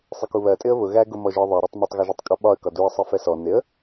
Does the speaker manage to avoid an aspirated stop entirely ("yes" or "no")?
yes